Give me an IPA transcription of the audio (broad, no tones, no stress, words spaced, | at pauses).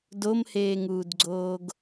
domheːŋuːdɡ͡ǀoːɡ